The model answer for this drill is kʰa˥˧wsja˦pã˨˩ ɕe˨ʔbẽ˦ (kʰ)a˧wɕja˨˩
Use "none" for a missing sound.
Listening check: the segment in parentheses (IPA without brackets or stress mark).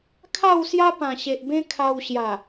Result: kʰ